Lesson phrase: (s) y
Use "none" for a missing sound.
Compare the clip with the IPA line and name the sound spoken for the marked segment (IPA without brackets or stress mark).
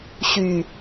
ɕ